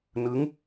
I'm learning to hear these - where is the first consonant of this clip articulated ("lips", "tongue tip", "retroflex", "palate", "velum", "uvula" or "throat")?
tongue tip